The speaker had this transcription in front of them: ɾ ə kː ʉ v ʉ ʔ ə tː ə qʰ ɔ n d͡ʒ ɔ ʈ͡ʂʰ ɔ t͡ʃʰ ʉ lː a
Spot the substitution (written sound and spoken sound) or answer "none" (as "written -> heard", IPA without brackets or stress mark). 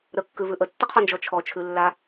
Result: ʈ͡ʂʰ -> t͡ʃʰ